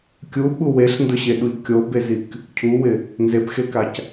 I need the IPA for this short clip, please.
kʲ u ɓ u w e ɬ n d ʊ ɕ e ɗ u ʎ kʲ o b e z i k | cʰ u w ɪ | n z e p x e k a c

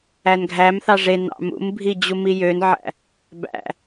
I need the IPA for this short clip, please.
æ n ɡʱ æ m θ ɑ ʐ e n ɑ̰ m ṵ m bʱ i d͡ʑ u m i j ø n ʕ æ̰ | b æ̰

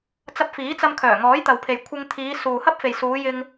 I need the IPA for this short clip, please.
t͡s ɐ˧ p̚ f iː˨˥ t͡s ɐ˧ m kʰ œː˨˩ ŋ ɔː˨˥ j t̪ ɐ˨ w pʰ e˨ j kʷʰ ɪ˧ ŋ t̪ʰ iː˨˧ s uː˨ h ɐ˥ p̚ f e˨ j s uː˨˧ j ɪ˧ ŋ

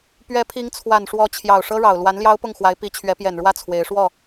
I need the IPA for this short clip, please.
p ɥ ɛ˧˥ pʰ i˧˥ ŋ t͡sʰ w a˨˩ n ʂ w ɔ˧˥ t͡ɕʰ j ɑ˨˩ ʊ̯ ʂ ɤ˥ ɻ ɑ˨˩ ʊ̯ l w a˧˥ n l j ɑ˥ ʊ̯ p ʊ˥˩ ŋ x w a˧˥ ɪ̯ p i˧˥ t͡ɕʰ ɥ ɛ˧˥ p j ɛ˨˩ n ɻ w ä˥˩ t͡sʰ w e˧˥ ɪ̯ ʂ w ɔ˥˩

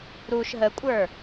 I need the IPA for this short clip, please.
ɾ u ʃ ɦ ə kʷʼ ə˞

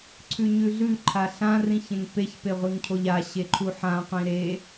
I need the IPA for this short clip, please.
ǀʰ ʉ ɲ ʉ ɮ ʉ ǃʰ a ɬ ã r ĩ ç ẽ ŋ p e ç p e ʁʷ i ŋ cʰ o ʎ a ɕ e ǃʰ u ħ ã qʷ ĩ ɾ e

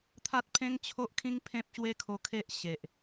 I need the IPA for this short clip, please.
t̪ʰ a˦ t̚ pʰ ẽ˦ ŋ t͡ɕʰ o˦ ʔ kʰ ĩ˦ ŋ pʰ ẽ˦ p̚ ɕ w e˦ kʰ o˧ kʰ e˦ ʔ ɕ e˨ ʔ

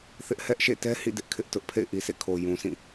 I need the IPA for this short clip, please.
θ ɪ˦ ʔ h ɛ˦ ʔ ʃ ḛ˦˨ t ɛ˦ h ḭ˦˨ d ɪ˦ ʔ kʰ ɪ˦ ʔ t ʊ˦ ʔ pʰ ḛ˦˨ ɪ̯ ʔ i˨ s ḛ˦˨ kʰ o˨ j ũ˨ sʰ ĩ˦˨

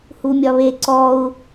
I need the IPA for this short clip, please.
h u mʲ ɒ β e ǀ ɔ u̯

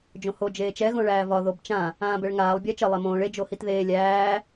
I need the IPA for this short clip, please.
d͡ʒ õ h o d͡ʒ eː t͡ʃ ɛ ɣ õ ɭ æː v ɒ ð o b t͡ʃ ã | ãː b ɛ ɭ ŋ aː lˠ bʲ æ t͡ʃ ə lˠ ɛ m õː ɭ e d͡ʒ o h i t ð eː lʲ æː

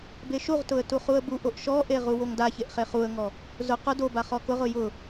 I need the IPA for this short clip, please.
b e ʃ u ʁ t ʊ ə̯ t u χ u ə̯ b u ʔ o ʔ ʃ ɔ ʔ e ʁ u w o ŋ d a ç e ʔ χ e χ u ə̯ ŋ ɔ | z ʊ q ʊ d o b a χ ɔ k ʊ ʁ ʊ j ʊ

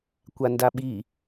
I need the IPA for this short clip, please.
kʷ a n d a ɓ i

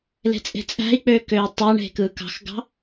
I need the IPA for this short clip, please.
l e̤ t͡sʼ e̤ t͡sʼ æ̤ i̯ k͡p øː k øː tˤ ɑ ɳ e̤ k ɯː k ɑ̤ x ɡ ɑ̤

